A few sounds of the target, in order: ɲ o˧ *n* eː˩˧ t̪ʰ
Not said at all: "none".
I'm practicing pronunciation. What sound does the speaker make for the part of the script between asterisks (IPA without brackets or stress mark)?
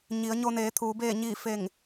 n